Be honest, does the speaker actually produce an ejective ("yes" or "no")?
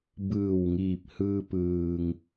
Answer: no